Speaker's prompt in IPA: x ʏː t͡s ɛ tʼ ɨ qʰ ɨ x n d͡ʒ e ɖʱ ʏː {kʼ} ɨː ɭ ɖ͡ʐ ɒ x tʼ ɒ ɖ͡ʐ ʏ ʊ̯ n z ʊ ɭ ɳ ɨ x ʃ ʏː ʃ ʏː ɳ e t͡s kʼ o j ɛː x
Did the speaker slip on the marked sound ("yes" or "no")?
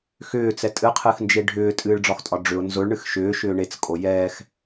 yes